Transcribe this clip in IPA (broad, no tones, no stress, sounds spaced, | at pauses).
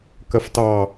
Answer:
k ɜ f t ɑ